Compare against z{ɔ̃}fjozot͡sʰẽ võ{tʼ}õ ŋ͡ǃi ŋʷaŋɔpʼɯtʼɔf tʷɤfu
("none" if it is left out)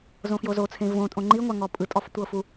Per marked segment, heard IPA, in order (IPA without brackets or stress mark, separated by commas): õ, tʼ